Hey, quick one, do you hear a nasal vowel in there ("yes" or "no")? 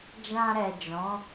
yes